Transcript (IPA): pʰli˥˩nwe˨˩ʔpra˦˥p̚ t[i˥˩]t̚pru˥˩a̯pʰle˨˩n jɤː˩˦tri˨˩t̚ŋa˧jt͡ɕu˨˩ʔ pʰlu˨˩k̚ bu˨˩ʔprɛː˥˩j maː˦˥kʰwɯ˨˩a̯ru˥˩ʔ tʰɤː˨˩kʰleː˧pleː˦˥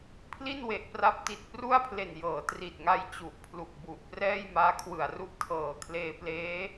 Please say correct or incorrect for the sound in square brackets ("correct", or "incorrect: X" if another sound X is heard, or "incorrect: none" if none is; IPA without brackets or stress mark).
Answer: incorrect: i˨˩